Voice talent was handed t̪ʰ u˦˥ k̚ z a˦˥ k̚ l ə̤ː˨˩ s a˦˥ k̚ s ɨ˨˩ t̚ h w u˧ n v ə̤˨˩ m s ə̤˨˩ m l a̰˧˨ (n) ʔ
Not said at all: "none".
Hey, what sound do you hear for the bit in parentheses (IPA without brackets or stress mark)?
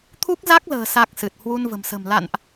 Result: n